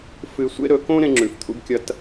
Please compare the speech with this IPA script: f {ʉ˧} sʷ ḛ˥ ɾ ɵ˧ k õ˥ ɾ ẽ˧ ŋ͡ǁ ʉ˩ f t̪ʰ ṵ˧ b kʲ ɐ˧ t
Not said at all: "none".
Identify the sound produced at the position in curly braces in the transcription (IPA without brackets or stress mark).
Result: ɨ˧